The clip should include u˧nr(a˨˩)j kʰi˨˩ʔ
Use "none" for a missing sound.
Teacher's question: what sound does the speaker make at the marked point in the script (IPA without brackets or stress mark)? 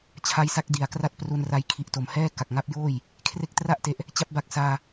a˦˥